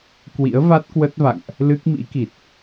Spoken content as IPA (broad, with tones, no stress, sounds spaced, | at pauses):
k w ḭ˧˥ ə̯ v a˦˥ t̚ k w ə˦˥ t̚ v a̰˧˨ ŋ ʔ | l ɨ˦˥ k̚ m ḭ˧˥ k i˨˩ t̚